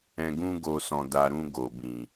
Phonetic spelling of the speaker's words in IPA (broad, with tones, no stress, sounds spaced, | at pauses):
ɛ̃˧ ɡ ũ˦ ɡ o˧ s ɔ̃˨ d a˨ ɾ ũ˧ ɡ o˨ b ĩ˨